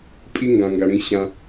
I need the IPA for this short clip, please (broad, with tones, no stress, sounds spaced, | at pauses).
pʼ i˦ ŋ ɡ ã˨ ŋ ɡ a˨ ɽ ĩ˦ ɕ ã˦